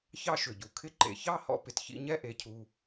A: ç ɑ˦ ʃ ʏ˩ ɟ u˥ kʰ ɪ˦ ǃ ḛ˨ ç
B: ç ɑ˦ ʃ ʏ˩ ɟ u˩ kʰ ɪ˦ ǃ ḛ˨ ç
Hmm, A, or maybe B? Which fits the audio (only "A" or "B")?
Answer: B